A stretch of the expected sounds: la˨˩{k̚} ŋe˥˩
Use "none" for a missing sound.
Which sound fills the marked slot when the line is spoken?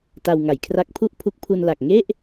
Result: k̚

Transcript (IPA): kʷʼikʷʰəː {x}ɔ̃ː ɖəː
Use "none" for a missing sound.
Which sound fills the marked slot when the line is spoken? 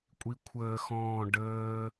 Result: x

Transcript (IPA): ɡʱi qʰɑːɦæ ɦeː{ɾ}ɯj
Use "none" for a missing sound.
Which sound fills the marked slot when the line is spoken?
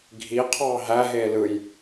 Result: l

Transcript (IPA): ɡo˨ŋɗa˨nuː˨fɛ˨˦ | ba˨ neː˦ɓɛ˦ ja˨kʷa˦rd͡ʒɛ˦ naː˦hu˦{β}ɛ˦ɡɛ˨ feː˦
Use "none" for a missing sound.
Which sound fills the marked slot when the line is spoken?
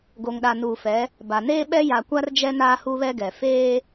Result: β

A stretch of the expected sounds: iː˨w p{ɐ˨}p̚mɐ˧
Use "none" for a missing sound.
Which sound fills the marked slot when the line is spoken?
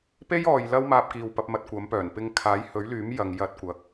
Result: ɐ˨˥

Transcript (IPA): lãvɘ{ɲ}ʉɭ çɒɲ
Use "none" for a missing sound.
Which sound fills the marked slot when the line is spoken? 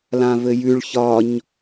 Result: j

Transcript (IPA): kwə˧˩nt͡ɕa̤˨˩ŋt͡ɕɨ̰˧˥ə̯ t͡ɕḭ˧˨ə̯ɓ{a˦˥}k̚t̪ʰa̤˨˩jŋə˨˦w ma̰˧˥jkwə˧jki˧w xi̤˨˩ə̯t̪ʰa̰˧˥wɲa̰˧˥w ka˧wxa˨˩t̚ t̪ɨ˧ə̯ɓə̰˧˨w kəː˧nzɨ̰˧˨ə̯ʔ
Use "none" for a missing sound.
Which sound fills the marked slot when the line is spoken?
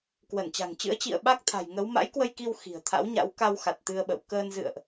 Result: a˦˥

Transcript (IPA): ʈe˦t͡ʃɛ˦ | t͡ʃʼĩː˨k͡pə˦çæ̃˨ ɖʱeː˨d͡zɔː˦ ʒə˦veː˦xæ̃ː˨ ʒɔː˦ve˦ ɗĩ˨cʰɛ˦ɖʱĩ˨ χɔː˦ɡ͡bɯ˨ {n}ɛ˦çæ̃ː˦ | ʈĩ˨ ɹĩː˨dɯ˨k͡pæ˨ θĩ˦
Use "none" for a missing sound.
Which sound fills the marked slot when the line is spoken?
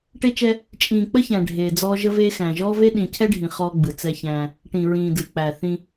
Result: t͡s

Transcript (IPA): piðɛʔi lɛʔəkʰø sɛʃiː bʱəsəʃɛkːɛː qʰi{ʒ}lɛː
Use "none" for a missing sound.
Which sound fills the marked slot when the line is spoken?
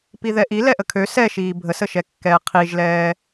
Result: ʒ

